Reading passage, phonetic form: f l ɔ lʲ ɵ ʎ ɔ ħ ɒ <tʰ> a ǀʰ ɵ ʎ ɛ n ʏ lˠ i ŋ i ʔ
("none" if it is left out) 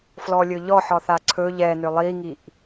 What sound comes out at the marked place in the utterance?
θ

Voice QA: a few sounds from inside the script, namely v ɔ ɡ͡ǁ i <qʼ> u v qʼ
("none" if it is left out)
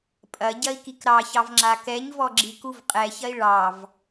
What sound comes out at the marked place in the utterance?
k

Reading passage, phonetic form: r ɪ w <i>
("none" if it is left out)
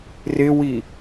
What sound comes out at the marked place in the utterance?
i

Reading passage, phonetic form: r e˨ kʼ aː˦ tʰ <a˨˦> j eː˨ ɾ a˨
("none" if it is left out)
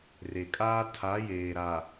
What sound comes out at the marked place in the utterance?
a˨˦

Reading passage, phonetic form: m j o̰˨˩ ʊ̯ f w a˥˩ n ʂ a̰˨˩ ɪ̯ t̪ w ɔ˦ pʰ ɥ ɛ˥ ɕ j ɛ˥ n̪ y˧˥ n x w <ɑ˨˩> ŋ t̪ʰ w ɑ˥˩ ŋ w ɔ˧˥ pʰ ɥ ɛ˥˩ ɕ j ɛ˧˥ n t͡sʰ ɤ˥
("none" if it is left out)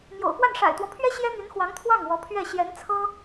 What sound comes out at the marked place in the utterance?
ɑ˧˥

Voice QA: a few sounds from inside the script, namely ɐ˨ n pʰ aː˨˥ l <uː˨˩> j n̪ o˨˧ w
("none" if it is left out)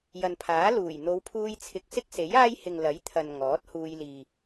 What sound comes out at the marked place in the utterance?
uː˨˩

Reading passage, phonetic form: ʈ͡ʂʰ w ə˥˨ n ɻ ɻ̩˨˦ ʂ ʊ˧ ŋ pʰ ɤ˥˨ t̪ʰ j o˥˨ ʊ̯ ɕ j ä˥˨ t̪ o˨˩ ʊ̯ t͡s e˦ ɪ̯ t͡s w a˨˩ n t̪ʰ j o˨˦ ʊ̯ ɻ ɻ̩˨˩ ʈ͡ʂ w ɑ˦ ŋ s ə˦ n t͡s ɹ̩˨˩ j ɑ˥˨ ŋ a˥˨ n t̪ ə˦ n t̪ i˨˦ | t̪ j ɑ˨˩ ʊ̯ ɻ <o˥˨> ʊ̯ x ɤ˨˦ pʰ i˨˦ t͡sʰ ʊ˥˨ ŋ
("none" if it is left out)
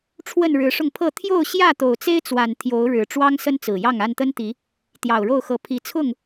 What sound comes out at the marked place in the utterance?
o˥˨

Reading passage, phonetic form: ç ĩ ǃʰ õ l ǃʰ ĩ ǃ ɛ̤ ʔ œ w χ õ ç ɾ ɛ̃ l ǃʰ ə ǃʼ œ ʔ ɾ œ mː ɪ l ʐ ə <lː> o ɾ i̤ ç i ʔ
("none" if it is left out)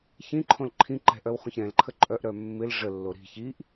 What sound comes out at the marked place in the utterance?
lː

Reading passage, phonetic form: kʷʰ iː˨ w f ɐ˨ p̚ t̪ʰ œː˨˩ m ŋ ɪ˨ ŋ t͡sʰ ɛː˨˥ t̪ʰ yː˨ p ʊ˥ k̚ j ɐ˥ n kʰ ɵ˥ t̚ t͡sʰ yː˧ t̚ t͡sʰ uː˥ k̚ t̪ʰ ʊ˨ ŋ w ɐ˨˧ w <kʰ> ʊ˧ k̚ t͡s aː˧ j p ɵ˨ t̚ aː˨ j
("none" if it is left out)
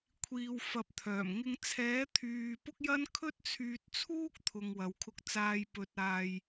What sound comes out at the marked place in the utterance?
kʰ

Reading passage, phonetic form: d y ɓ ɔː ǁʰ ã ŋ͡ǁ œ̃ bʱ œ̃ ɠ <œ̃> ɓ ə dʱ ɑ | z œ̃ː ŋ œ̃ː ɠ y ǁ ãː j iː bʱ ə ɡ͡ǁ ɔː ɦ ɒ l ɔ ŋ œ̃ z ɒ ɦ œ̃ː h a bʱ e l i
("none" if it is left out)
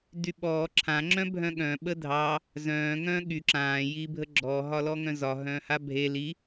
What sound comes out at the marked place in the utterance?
œ̃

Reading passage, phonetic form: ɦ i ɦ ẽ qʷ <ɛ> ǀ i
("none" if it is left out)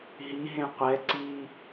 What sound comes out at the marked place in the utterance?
ɛ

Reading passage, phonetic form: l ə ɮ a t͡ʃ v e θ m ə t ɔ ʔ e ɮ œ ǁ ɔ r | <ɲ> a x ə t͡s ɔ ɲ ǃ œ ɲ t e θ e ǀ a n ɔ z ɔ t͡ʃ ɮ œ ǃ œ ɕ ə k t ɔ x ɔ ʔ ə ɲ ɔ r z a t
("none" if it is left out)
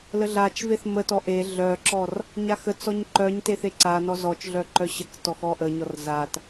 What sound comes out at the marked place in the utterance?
ɲ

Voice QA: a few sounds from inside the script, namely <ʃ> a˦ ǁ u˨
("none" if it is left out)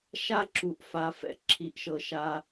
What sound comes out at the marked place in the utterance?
ʃ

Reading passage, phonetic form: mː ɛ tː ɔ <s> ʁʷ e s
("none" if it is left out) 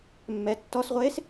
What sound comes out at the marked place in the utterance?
s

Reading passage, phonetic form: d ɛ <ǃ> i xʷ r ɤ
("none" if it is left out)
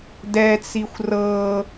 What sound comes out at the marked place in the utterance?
t͡s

